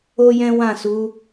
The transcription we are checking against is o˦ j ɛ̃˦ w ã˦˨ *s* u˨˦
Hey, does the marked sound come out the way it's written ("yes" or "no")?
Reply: yes